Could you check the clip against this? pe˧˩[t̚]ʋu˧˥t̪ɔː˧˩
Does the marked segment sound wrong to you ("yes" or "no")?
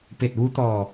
no